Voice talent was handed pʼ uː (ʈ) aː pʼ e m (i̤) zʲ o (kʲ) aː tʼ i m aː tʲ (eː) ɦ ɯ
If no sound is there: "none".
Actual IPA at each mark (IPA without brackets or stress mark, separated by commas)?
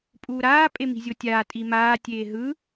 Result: ɾ, i̤, tʲ, eː